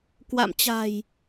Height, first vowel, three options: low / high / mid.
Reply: low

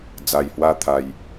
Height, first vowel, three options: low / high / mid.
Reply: low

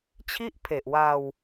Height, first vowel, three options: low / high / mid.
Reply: high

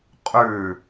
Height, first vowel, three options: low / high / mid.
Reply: high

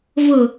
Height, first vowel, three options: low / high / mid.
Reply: high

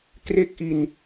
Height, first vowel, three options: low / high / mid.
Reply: mid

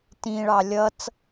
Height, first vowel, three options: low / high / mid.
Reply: high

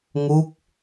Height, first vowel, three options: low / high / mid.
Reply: high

